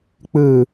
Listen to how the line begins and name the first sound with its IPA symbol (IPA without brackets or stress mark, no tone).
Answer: k͡p